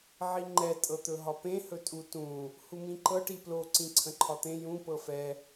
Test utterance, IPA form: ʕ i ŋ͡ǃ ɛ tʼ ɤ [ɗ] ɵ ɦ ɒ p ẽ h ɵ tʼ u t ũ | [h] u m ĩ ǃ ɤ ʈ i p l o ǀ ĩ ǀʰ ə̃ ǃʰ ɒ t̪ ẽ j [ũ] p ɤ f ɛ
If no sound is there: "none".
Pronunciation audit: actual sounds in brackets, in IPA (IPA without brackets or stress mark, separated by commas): t̪, h, ũ